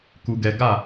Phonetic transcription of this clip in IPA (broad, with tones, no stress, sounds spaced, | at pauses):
k u˨ ɡ ɛ˨ ɡ a˦˨